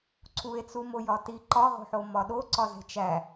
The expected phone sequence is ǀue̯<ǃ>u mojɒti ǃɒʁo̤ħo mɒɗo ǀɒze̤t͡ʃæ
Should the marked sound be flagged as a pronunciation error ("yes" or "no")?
yes